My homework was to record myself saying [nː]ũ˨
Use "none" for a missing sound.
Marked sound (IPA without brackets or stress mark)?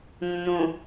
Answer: nː